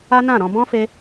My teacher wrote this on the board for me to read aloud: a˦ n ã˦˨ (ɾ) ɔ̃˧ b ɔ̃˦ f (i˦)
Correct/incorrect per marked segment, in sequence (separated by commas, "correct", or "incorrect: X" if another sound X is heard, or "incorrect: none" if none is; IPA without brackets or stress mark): correct, incorrect: e˦